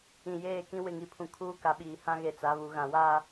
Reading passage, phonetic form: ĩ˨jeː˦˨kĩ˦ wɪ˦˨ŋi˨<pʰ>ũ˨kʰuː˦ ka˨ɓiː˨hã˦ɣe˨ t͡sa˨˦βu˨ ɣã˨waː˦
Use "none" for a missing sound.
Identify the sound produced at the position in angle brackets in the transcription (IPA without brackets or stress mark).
pʰ